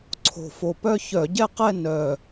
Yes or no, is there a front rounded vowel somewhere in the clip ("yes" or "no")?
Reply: yes